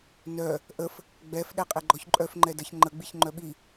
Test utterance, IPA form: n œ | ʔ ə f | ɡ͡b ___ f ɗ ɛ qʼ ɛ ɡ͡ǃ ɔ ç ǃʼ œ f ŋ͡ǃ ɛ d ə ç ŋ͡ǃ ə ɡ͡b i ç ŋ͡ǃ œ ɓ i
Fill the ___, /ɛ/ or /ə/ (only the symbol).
ɛ